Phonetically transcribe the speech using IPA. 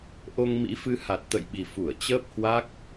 ʔ o˧ ŋ m ḭ˧˥ f ɨ˧ h a˨˩ t̚ t̪ ə̰˧˨ j ɓ i˨˩ f u˧˩ ə̯ t͡ɕ əː˦˥ p̚ h w a˦˥ k̚

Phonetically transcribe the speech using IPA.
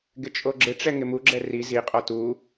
ɡ ɪ t͡ʃʼ o ɡ͡ǁ ɪ ʈ͡ʂ ɛ ŋ ɪ m u ɡ͡ǁ ɛ r i z i qʼ ɔ t u

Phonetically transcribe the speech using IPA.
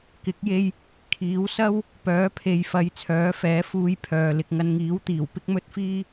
k ɪ˨˥ k̚ j e˧ j | kʰ iː˨˥ w s ɐ˥ w | p œː˨˥ pʰ e˨ j f ɐ˨˧ j t͡sʰ œː˨˥ f ɛː˨˥ f uː˧ j pʰ œː˨ l ɪ˧ k̚ ŋ ɐ˧ n ŋ iː˨˥ w t̪ iː˨˩ w p ɪ˥ k̚ m ɵ˥ t̚ f iː˥

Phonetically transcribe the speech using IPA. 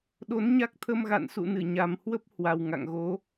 ɗ o˨˦ n ɲ a˦˥ k̚ t̪ʰ ə˧ m ɣ a̰˧˨ n s ṵ˧˨ n ɨ˧˩ ɲ a˨˩ m h w ə˦˥ p̚ h w a˨˩ w ŋ a̰˧˨ ŋ ɣ o˨˦

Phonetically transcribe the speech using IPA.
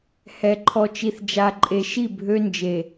h ɛ˨ ǃʰ ɔ˨ t͡ʃ i˨ θ d͡ʒ a˨ ǃʼ e˨ ʃ i˦˨ bʱ ø˦ n d͡ʒ e˨

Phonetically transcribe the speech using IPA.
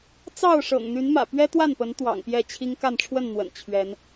t͡s ɑ˥˨ ʊ̯ ʂ ɤ̰˨˩ ŋ n̪ y˨˦ n m ä̰˨˩ p ɥ ɛ˦ t̪ w a˥˨ n p ə˨˦ n t̪ w ɑ̰˨˩ ŋ p j ɛ˥˨ t͡ɕʰ i˦ ŋ k a˥˨ n ʈ͡ʂʰ w ə˥˨ n n̪ w ə̰˨˩ n t͡ɕʰ ɥ ɛ˨˦ n

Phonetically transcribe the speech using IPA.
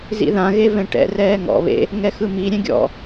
z ḭ ð ã ɣ e v ɛ̃ ʈ ɛ̰ r ɛː ŋ ɔ̰ β ḛ | ŋ ɛ x ɯ m i ɾʲ ɛ̃ ɡʲ ɔ̰

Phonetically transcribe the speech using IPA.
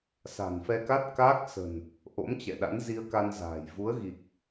s a̤˨˩ n f ɛ˧ k a˦˥ t̚ k aː˦˥ k̚ s ə̤˨˩ n | ʔ o̰˧˥ m t͡ɕ ɛ̰˧˨ ɗ a̰˧˥ n z i˧ ə̯ k a˧ n z a̤ː˨˩ j v u˨˦ ə̯ ɣ i˨˩ k̚

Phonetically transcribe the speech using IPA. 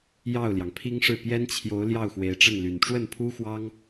j ɑ˥˩ ʊ̯ l j ɑ˩ ŋ pʰ i˥ ŋ ʂ ɻ̩˥˩ p j ɛ˥ n t͡ɕʰ j o˧˥ ʊ̯ l j ɑ˥˩ ʊ̯ x w e˧˥ ɪ̯ ʈ͡ʂ ə˥˩ n l y˨˩ n ʈ͡ʂ w ə˥˩ n pʰ u˥ x w ɑ˥ ŋ

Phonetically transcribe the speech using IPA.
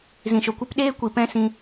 z ĩ˨ ʃ o˨ kʷ i˦ p ɗ eː˦ kʷ i˨ p ɛ̃˦ s ĩ˧

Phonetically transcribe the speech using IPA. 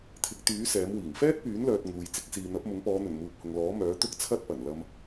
t̪ʰ ɪ˨˥ k̚ t̪ yː˨˥ s ɛː˨˥ m w iː˨˩ ŋ f ɛː˥ t̚ p yː˨˥ n l œː˨ t̚ ŋ uː˨ j t͡s ɪ˨˥ k̚ s iː˨ n̪ ɐ˨˥ p̚ m ʊ˨˥ ŋ p ɔː˨˧ n̪ ɵ˨˩ n m uː˨ p̚ h ʊ˨ ŋ l ɔː˨˥ m œː˨˥ t̪ ʊ˥ k̚ t͡sʰ ɐ˥ t̚ p ɐ˨˩ n l ɐ˨ m

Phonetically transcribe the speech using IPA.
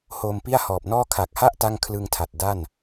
h oː˧ m p i˥˩ a̯ h ɔː˨˩ p̚ n ɔː˥˩ kʰ a˨˩ k̚ h a˥˩ ʔ t a˥˩ ŋ kʰ l ɯ˧ ŋ tʰ a˨˩ t̚ d a˥˩ n

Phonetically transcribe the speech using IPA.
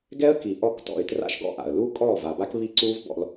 ɡ ɛ˦ ə̯ k i˨ ʔ ɔ˧ k t ɔ̰˨ ɪ̯ t r a̰˦ ʃ ɡ ɔ̰˦ ʔ a̰˨ ə̯ l u˦ kʼ ɔː˦˨ v a˨ b a˦ k β i˦ ǀ uː˦ v b ɔ̰˧ l

